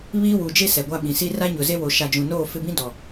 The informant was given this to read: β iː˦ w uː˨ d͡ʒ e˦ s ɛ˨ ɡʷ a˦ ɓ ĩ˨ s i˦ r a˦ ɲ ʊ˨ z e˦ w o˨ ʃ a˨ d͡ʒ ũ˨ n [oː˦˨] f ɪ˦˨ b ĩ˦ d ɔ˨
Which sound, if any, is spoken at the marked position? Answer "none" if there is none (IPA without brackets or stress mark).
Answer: oː˦˨